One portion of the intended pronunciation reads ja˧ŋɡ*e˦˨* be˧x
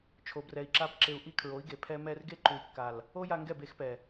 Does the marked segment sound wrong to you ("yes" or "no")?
yes